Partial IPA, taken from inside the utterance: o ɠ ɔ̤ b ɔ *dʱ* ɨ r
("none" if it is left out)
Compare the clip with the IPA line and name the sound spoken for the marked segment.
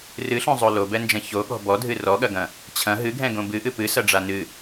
dʱ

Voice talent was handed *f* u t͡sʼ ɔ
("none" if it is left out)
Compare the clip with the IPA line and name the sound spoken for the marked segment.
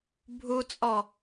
bʱ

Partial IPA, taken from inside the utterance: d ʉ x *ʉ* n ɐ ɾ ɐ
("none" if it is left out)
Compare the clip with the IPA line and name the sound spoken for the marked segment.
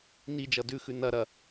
ʉ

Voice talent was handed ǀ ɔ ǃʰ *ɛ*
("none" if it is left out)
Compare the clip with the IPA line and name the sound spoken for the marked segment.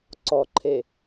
e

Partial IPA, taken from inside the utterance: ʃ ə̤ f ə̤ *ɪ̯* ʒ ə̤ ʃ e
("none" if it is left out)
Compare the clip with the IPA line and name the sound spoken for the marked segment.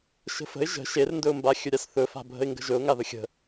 ɪ̯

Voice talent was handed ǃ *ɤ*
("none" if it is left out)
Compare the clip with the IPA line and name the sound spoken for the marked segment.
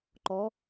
ɔ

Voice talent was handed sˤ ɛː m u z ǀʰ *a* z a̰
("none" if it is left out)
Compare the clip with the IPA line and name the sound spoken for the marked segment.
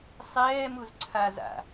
a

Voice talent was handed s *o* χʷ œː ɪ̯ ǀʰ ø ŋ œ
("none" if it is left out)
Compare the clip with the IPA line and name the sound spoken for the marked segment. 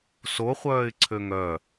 o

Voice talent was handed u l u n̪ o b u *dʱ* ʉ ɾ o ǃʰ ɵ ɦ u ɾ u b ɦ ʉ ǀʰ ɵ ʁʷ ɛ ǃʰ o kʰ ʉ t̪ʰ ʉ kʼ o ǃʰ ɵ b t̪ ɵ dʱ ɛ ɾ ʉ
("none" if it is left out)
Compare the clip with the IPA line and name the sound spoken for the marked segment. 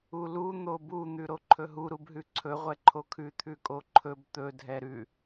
n̪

